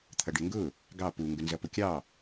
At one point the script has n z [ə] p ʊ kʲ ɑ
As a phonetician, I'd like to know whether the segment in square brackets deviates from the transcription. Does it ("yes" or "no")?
yes